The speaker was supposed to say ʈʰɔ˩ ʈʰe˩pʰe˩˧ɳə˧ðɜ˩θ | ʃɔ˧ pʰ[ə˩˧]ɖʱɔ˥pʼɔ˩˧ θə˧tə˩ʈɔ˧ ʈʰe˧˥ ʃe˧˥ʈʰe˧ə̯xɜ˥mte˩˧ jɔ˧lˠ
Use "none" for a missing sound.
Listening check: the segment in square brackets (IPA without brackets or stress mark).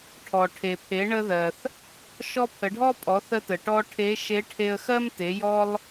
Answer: ə˩˧